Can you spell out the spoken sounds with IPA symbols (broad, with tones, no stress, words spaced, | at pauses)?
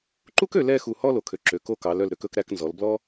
ǃu˥kø˩˧ lɛ˥˧xu˧˩ hɔ˥˧lo˩˧kʰø˩˧ ǁø˩˧k o˧kɑ˩˧l œ˧˩lɾø˧kɵ˧k ɾæ˧knzɔ˩˧l blɔ˥